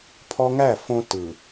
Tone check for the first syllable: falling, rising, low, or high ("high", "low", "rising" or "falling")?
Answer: high